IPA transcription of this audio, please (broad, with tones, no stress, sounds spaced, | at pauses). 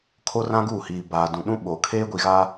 kʰ o˦ r ã˦ ɡ uː˦˨ h iː˨ b aː˨ d ũ˨ ɗ ũ˦ ɓ o˨ kʰ eː˦ ɡʷ i˨ ɣ a˦